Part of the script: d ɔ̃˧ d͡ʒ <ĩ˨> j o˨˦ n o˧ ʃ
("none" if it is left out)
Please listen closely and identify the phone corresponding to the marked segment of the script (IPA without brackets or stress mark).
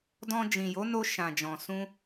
ĩ˨